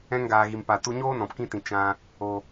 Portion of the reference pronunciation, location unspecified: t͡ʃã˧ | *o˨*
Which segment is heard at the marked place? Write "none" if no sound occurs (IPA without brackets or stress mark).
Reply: o˨